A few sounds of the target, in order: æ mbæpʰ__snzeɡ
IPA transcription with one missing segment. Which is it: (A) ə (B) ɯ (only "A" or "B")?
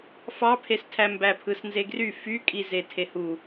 B